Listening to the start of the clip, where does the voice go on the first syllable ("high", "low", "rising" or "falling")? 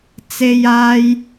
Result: high